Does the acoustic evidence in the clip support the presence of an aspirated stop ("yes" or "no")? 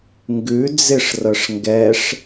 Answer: no